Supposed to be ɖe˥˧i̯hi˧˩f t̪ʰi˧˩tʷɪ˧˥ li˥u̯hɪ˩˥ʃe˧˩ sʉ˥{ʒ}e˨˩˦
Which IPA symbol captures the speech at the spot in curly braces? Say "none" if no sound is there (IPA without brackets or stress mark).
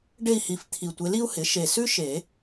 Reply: ʃ